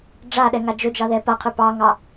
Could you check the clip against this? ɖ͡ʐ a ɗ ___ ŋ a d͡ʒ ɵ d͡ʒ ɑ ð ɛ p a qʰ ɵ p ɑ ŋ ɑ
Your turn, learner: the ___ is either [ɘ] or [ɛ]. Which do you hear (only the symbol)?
ɛ